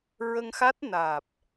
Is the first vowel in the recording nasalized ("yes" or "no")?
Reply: no